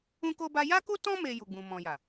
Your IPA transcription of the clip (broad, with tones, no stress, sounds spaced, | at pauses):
ũ˦ k o˦ b a˦ j a˦ k u˦ t ɔ̃˦ m e˧ j u˨ ɡ͡b ũ˨ m ɔ̃˨ j a˨